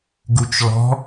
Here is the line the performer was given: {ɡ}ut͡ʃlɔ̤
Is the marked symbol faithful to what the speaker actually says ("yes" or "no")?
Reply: yes